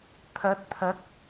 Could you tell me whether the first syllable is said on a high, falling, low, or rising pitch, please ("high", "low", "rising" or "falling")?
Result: rising